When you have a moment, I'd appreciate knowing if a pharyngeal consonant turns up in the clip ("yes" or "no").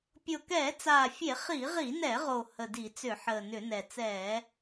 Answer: yes